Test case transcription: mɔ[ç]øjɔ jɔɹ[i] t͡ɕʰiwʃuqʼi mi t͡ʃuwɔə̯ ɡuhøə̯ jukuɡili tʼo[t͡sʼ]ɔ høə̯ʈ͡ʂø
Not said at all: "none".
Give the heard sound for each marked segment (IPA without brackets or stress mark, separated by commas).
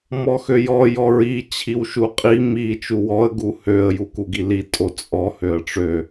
x, i, t͡sʼ